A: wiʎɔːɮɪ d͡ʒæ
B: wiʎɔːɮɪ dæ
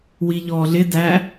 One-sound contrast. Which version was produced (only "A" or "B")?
B